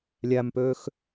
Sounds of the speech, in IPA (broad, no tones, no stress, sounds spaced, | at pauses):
lʲ æ m p øː x